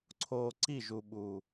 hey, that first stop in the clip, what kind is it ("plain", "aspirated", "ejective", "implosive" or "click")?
click